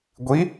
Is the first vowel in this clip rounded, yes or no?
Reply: no